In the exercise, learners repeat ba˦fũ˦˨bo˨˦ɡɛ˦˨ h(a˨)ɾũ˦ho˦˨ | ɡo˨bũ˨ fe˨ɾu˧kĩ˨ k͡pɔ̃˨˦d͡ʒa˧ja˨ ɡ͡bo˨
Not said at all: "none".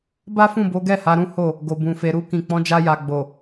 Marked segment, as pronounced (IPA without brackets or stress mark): a˨˦